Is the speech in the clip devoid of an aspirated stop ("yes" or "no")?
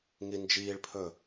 no